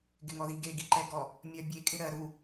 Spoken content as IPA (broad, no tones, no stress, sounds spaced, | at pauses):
ɡ ɪ ŋ ɔ ð i ɡ e ɡ i ǃ ɛ ɡ ɔ | mʲ ɜ bʲ e kʼ ɪ ɾ ɜ ɾ u